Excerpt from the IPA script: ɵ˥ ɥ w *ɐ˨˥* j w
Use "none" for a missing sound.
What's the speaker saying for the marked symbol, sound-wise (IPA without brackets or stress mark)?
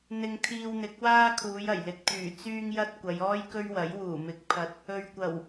ɐ˨˥